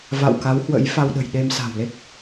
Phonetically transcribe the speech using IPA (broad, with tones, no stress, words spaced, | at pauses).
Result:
va̰˧˨wka˨˦whwə̰˧˥j fa˧wɗə̤˨˩jɗe˧m sa̤˨˩wle˦˥k̚